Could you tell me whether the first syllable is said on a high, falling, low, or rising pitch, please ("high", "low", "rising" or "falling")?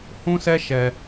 high